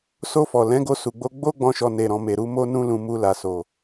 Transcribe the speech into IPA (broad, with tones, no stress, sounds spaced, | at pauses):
s o˧ f ɔ˨ l ɛ̃˨˦ ɡ o˧ s u˨ ɡ͡b o˧ ɡ͡b o˦ ɡ͡b ɔ̃˧ ʃ ɔ˨ n e˨ ɾ ɔ̃˨ m e˨ ɾ u˧ m o˦ n ũ˦ l ũ˧ m u˧ l a˨ s o˨